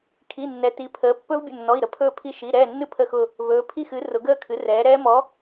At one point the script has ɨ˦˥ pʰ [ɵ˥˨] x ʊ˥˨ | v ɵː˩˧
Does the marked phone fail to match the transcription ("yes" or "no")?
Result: yes